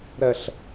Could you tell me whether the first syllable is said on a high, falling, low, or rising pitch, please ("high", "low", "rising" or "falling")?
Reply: low